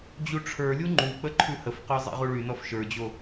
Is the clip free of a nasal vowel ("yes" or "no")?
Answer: yes